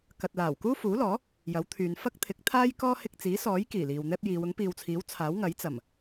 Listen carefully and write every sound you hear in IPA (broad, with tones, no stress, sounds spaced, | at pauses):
k ɐ˨ t̚ l aː˨˩ w k uː˥ f uː˨˥ l ɔː˨˥ | j ɐ˨˥ w t̪ʰ yː˨˧ n f ɐ˥ k̚ t̪ʰ ɪ˨˥ k̚ t̪ʰ aː˥ j k ɔː˥ h ɪ˧ k̚ t͡s iː˨˥ s ɔː˨˥ j k iː˨˩ l iː˨ w n̪ ɛː˥ p̚ j iː˨˧ w ʊ˨˥ ŋ p iː˨ w t͡sʰ iː˨˥ w t͡sʰ aː˨˥ w ŋ ɐ˨˥ j t͡s ɐ˨˩ m